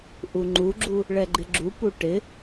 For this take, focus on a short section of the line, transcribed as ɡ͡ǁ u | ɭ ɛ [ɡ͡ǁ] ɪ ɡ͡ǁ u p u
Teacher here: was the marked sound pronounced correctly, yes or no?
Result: no